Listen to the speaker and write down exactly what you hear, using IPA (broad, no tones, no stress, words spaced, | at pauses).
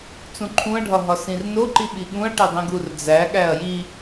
t͡sũǃʰũɐ̯ɖʱɒ ɦɒsĩrnoǃi ɓiɠũɐ̯ʈe dˤĩɡurd͡zæɠæɐ̯ ji